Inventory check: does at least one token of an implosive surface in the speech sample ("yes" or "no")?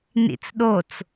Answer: yes